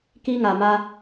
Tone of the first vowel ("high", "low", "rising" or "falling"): high